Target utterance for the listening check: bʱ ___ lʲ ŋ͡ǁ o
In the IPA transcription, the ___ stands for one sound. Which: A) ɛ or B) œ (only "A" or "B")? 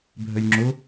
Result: B